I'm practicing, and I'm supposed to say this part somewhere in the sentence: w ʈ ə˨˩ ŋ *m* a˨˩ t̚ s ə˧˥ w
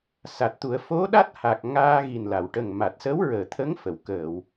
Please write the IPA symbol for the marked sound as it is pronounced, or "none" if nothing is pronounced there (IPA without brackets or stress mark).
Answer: m